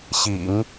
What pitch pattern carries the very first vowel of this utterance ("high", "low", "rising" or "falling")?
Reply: low